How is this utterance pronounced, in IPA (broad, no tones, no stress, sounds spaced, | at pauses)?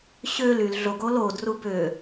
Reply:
ɕ ø l y l ɮ o ɡ o l o d r u b ø